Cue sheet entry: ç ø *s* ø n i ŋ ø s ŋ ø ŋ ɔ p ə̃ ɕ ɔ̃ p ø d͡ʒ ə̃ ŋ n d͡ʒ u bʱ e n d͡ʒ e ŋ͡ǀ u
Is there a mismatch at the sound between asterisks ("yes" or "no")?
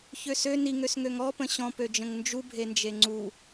no